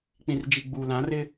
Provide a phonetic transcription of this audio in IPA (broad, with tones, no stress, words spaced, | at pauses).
k͡pĩ˨rd͡ʒi˨ɡ͡bu˨ lã˨˦rɪ˦